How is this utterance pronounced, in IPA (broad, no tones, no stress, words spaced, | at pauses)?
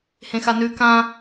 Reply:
hẽxanʉ kã